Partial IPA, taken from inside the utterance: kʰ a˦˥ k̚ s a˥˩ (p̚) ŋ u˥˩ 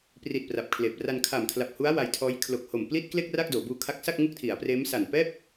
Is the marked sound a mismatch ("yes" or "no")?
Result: yes